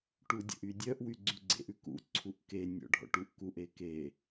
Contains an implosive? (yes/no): no